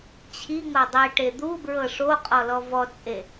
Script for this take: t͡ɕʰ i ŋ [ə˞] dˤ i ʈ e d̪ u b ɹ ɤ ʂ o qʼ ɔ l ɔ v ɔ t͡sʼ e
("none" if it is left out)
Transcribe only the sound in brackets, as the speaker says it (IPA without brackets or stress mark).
ɤ